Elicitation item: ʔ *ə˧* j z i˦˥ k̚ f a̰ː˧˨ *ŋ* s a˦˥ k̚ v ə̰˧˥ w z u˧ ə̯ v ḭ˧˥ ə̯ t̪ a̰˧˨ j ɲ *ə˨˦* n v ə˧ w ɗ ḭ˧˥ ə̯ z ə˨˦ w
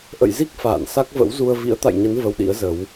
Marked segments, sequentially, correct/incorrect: incorrect, incorrect, correct

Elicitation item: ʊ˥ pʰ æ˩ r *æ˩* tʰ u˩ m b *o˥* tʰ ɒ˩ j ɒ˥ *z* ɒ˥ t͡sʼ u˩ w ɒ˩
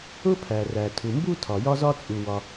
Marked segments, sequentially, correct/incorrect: correct, incorrect, correct

